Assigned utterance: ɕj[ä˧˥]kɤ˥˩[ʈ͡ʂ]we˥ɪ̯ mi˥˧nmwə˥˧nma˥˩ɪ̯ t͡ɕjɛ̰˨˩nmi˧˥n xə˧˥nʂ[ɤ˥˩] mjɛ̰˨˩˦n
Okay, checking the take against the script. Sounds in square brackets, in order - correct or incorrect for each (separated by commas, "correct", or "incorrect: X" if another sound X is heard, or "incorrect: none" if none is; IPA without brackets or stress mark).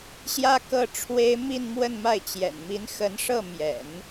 incorrect: ä˥, incorrect: ʈ͡ʂʰ, correct